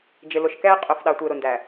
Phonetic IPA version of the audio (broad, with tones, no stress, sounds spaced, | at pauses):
d͡ʒ ɪ˨ l ʊ˨ ʃ k ɛː˦ qʼ ʊ˨ f ɗ ɑ˨ tʷ ɪː˨ ɾ ʊ˨ n d æ˨